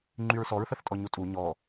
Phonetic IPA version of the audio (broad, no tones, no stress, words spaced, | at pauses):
ŋ͡ǃyɹsɔɹ θəθtʼɔɲutʼu ɲɔ